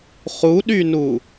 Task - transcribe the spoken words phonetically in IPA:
χuɗynu

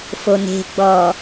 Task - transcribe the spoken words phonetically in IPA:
fone̤ɡ͡bɔ

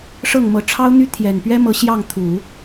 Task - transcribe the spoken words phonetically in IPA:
ʂɤ˥˩ŋmɤ˧˥ ʈ͡ʂʰɑ˥ʊ̯n̪y˥ t̪ʰjɛ˨˩npɥɛ˥mɤ˧˥ ɕjɑ˥˩ŋt̪ʰu˨˩˦

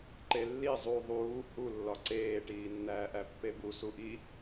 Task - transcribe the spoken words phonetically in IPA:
ǃelːi zˤu ðˤuː hu lːɒǀeːʈiː nːæːʔæpːebu suʔi

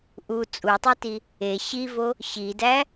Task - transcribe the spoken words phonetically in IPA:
ʔu t͡sʼutˤiti | e ɕivo | ɕidæ

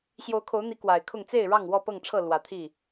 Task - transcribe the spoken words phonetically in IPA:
ɕjo˨˦ʊ̯kʰo˨˦ʊ̯n̪i˨˦ kwa˨˩ɪ̯kʰʊ˥˨ŋ t͡se˥˨ɪ̯ ɻɑ˥˨ŋwɔ˥˨pɤ˥˨ŋʈ͡ʂʰɤ˥˨ lwä˨˦t̪ʰi˥˨

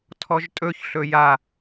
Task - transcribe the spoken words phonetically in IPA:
tʰɔʒtʼɵç ɬɵja

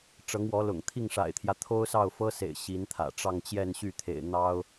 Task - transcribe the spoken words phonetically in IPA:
ʈ͡ʂɤ˧˥ŋwɔ˧˥ lʊ̰˨˩ŋ t̪ʰi˥˩ŋʂa̰˨˩ɪ̯t̪ʰjä˦ t̪ʰo˥ʊ̯sɑ˥˩ʊ̯fɤ˥sḛ˨˩ɪ̯ ɕi˧˥nt̪ʰä̰˨˩ ʈ͡ʂɑ˥˧ŋt͡ɕjɛ˥˧n ɕy˥˩t̪ʰḛ˨˩ɪ̯ n̪ɑ˥ʊ̯

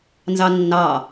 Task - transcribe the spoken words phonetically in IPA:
nzɑnːɑ

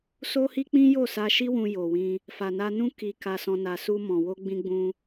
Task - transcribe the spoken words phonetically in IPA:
so˦hi˦ k͡pĩ˦jo˦˨sa˧ʃi˦ wũ˧jo˨wĩ˧ | fa˨na˧nũ˦ ki˧ka˧sɔ̃˧ na˧su˦ mɔ̃˧ wo˦ɡ͡bĩ˦ ɡ͡bũ˦

